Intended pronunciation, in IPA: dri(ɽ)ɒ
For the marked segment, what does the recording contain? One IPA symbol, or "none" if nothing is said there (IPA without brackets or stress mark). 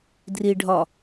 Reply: ɖʱ